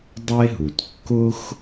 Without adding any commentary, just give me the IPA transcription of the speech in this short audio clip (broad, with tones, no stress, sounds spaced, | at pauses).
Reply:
dˤ e˥ ɦ u˩ t kː ʊ˥ x